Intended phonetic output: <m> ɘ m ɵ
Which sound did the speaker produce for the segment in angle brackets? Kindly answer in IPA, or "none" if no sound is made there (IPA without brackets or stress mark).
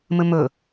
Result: m